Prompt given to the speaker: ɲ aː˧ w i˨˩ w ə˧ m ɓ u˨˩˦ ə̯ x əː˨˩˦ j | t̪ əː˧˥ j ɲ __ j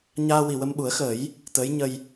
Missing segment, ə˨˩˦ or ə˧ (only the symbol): ə˧